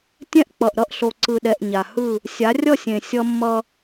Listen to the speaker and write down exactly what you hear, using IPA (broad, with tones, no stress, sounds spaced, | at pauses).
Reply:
tʲ ɛ̃˦ ʔ k͡p ʌ˨ ʔ ɾ ʌ˦ ʔ ɬ o˨ ǀ ɯ˨ ɗ ɛ˨ ʔ ɲ a˨ h ɯ˦˨ | sʲ a˨˦ rʲ ʌ˦˨ sʲ ẽ˨ sʲ ʌ˦ mː ʌ˦